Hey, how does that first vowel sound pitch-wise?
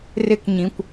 high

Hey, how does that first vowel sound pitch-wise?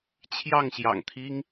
falling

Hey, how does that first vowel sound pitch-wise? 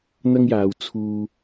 high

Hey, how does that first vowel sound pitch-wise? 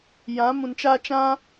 rising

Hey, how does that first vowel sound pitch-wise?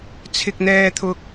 low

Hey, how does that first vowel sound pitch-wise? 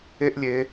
high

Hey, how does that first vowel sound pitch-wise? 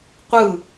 falling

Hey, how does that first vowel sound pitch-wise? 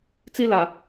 high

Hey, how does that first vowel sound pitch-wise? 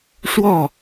falling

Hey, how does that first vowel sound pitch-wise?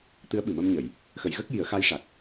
rising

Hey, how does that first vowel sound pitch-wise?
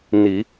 low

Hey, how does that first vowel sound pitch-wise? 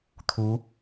rising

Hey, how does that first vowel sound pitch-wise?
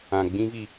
low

